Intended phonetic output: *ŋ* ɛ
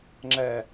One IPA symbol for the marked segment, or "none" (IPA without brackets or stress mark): ŋ͡ǁ